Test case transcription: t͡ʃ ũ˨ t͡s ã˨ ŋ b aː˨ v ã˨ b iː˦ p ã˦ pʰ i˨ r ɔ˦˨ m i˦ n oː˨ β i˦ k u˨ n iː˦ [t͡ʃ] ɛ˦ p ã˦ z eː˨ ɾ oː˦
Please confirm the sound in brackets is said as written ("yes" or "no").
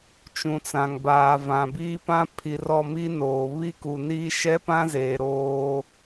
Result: no